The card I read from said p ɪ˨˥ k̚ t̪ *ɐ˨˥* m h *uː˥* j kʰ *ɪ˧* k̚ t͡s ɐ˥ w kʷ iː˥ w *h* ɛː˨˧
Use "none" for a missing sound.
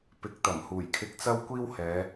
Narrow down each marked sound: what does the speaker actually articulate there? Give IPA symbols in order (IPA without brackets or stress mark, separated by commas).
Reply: ɐ˨˩, uː˨˩, ɪ˧, h